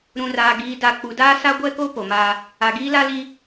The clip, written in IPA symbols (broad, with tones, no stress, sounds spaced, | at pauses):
ɾ ũ˨ r aː˨ ɡ iː˨˦ d a˨ k͡p u˨ d aː˦ s a˦ ɡʷ ɛ˦ k o˦ p o˨ m aː˦ | a˨ ɡ iː˦ l a˦ l i˦